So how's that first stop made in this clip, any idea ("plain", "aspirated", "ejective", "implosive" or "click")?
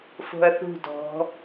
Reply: plain